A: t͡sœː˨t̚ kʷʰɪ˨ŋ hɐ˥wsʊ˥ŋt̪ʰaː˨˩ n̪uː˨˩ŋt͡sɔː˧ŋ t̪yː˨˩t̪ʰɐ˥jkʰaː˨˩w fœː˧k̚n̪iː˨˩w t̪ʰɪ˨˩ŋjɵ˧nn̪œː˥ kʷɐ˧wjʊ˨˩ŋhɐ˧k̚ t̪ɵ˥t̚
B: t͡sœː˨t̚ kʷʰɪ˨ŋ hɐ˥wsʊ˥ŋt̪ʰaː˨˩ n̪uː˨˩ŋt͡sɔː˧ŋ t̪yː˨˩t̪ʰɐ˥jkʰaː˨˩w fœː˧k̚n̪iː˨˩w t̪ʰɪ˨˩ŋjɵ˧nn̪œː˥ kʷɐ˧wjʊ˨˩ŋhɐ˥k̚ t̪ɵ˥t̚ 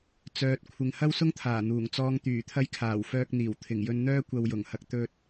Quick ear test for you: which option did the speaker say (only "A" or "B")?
A